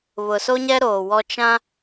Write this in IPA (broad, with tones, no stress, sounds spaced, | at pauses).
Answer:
β ʊ˨ s o˦ ɲ ɛ˦ ɾ oː˨ w ɔ˦ t͡ʃ ã˦